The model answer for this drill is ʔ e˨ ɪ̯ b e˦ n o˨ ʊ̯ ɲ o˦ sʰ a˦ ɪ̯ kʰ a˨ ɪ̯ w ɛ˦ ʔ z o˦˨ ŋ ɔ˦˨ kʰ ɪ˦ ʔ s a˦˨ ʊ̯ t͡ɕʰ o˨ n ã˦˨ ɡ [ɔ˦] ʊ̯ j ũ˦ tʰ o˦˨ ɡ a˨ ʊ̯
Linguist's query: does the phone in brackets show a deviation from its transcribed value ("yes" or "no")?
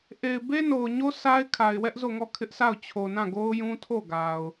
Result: yes